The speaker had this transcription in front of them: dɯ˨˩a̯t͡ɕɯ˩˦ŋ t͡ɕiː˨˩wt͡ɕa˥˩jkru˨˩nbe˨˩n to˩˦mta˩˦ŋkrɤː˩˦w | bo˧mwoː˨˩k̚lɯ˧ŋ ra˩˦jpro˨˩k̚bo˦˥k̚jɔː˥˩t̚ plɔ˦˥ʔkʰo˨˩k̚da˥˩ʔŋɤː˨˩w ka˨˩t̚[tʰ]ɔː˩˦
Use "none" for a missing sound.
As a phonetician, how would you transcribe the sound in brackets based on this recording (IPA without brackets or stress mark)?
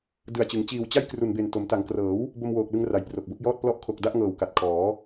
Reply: kʰ